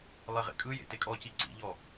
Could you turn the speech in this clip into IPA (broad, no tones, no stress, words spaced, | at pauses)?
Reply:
lˠeʁḛkʼɯjḛ tekʼɔci ǀḭʎɔ